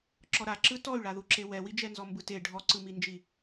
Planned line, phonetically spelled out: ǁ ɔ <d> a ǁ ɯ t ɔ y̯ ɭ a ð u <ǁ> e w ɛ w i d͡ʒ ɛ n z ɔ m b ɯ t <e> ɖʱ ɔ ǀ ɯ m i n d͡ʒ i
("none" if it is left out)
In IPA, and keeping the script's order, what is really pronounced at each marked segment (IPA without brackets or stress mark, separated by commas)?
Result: ɾ, ǁ, e